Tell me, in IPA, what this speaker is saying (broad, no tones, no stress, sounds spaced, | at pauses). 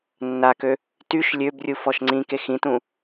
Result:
nː a k ø | t y ʃ lʲ ø b rʲ u f ɔ ʃ ŋ͡ǀ ĩ k e x ĩ t ũ